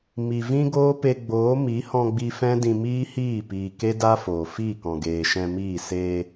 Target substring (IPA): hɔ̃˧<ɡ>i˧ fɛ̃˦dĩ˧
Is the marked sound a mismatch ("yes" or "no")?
yes